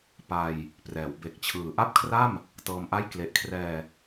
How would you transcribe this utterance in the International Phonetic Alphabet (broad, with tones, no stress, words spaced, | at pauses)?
pa˧j | prɛː˩˦w be˨˩k̚t͡ɕʰɯː˨˩ ʔa˥˩p̚kʰra˥˩m | tɤː˧mʔa˥˩j kle˨˩ʔkʰrɛː˧